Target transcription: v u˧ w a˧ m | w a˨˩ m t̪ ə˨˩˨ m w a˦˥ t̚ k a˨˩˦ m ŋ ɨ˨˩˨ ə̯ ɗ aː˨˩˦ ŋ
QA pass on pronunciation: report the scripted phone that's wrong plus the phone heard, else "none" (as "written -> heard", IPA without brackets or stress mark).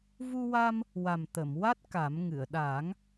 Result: none